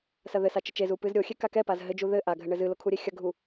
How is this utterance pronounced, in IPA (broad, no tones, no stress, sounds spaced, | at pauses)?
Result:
s ɐ ð ɘ s a t͡ʃ ɘ t͡ʃ e z u p ɨ z ɾʲ o xʲ e k a k ɛ p a z ɦ ɘ d͡ʒ u ð ɘ ʔ a ɡʱ ɘ ɳ ɘ z ɨ l o kʰ u ɾʲ e xʲ ɐ ɡʱ u